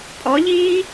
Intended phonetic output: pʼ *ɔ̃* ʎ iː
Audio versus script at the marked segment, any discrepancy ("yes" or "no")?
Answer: yes